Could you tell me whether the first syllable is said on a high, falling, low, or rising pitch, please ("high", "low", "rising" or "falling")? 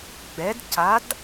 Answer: rising